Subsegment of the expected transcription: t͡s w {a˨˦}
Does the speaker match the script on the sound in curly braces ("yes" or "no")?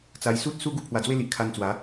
yes